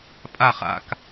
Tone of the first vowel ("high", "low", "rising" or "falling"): low